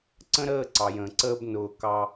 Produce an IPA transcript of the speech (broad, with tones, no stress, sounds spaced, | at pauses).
ǀ ə̃˦ ɾ əː˦˨ ǀ ɑ˨ j ə̃ː˨ ǀ əː˦ b n ʊː˨ k ɑ˧